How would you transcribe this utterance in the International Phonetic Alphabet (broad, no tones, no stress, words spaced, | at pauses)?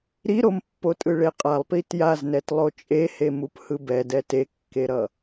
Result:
ɾiɾompːotʼɯ ɭeqʼalˠpi tjaznɛtlˠo t͡ʃʼehe muphɯbɛ dɛtekːeɾʌ